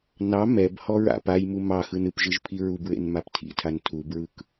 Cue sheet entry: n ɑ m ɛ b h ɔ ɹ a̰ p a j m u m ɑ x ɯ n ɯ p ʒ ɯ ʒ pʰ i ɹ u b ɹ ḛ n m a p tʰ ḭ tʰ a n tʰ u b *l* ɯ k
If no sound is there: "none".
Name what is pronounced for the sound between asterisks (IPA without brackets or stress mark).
ɹ